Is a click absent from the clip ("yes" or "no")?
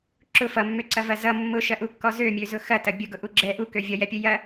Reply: no